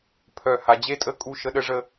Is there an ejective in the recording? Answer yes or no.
yes